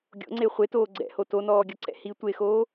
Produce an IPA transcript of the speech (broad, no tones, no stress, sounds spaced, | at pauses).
ɡʲ o̰ ŋ͡ǀ e χʷ e t oː ɡ͡ǀ ɛ̰ h o t o n ɔː ɡʲ ɔ ǀ ɛ̰ h i tʷ e x oː